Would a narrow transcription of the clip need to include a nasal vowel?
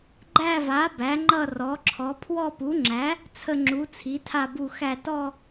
no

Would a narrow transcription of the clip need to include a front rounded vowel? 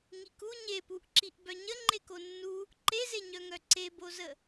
yes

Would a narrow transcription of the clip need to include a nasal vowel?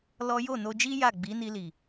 no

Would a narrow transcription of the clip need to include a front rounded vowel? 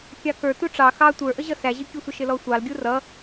no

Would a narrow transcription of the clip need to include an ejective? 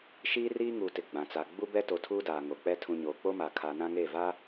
no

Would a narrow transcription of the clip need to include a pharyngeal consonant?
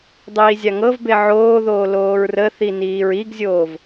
yes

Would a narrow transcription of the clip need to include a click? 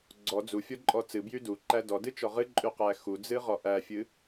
yes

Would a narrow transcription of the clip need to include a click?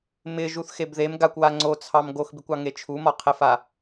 yes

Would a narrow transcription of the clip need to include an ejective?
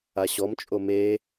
yes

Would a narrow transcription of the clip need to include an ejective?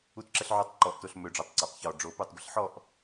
no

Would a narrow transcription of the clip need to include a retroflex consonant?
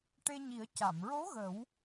yes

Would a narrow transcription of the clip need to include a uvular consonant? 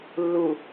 no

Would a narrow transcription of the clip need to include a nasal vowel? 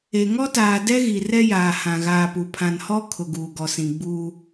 yes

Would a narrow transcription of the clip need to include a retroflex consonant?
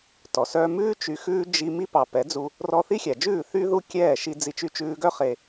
no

